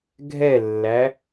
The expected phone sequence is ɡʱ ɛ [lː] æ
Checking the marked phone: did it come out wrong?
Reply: no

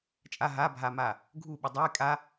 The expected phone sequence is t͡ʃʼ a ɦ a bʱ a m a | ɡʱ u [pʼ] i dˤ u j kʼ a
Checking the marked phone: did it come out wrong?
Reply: yes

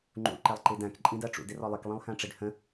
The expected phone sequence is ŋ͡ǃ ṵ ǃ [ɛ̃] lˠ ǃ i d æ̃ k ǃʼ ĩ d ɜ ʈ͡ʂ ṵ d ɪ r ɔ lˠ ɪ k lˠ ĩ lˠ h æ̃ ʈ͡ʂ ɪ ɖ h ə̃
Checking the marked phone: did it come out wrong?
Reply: yes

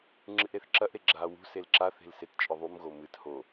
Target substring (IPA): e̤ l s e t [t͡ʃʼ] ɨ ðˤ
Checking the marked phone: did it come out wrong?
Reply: no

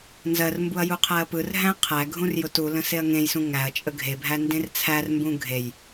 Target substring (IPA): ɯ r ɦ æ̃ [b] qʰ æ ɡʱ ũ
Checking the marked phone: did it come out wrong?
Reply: yes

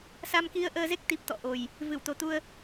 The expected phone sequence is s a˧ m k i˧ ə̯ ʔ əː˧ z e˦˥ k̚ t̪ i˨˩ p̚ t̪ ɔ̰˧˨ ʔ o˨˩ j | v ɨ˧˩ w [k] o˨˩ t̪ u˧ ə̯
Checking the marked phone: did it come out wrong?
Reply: yes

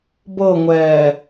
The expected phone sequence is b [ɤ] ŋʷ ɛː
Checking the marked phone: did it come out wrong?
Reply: no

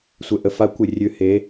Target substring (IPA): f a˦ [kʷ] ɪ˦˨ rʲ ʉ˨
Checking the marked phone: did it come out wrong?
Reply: no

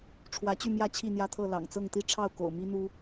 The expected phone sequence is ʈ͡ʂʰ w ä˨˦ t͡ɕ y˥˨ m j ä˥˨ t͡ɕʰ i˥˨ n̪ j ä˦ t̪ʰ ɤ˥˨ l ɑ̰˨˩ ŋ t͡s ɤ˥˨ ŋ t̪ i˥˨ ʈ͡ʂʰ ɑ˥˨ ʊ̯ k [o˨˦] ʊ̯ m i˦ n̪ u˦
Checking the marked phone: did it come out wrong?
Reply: yes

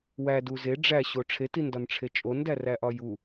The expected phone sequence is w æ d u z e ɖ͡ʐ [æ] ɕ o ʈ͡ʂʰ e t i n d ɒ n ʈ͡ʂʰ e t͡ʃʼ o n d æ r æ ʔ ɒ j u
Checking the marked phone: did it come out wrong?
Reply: no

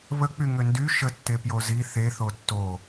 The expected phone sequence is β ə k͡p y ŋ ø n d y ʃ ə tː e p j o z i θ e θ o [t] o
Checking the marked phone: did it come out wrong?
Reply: yes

